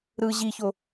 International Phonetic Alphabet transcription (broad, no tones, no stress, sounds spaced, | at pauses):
ɾ ɯ ʑ i ç o